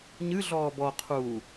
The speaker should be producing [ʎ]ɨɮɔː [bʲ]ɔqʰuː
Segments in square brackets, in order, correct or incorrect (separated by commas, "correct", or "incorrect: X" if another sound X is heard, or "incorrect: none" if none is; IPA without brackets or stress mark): incorrect: ɲ, incorrect: b